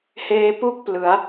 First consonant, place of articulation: glottal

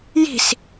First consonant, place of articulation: palatal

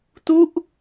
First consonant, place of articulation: alveolar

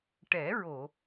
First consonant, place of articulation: retroflex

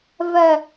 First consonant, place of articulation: labial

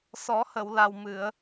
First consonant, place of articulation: alveolar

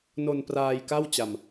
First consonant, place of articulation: alveolar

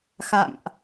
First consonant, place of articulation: velar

